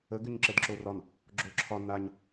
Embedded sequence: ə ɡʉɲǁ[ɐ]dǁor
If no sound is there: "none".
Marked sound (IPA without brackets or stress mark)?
ə